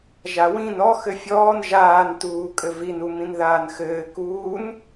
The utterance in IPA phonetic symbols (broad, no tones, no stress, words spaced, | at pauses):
ʒawĩn ɔ xɘfʲɔːn ʒaːntuːkʼɘ vinumĩn ðaːnxɘː kuːn